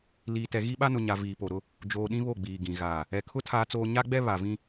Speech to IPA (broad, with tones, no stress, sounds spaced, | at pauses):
l iː˨ t ɛ˨ ɣ i˦ ɓ a˦ n ʊ˨ ɲ a˨ v iː˨ p o˨ ɾ ʊ˦ | d͡ʒ oː˨ ɗ ĩ˦ β o˦˨ ɡ͡b iː˨ ɡ ĩ˨ ɣ aː˨ | ɛ˨ kʰ ʊ˦ tʰ aː˦ t͡s oː˦ ɲ a˦ ɡ͡b ɛ˦ β a˨ v ĩ˦